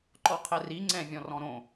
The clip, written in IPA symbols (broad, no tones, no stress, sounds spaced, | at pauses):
ǃ ɔ qʰ ɛ r i ŋ͡ǀ ɛ̃ vʲ ɔ̃ r ɔ̃ ɾ õ